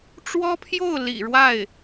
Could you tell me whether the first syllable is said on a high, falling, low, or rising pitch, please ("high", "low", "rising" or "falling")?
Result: high